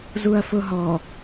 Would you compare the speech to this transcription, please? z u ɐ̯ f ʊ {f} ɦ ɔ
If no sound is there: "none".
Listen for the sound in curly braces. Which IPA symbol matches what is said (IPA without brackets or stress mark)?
none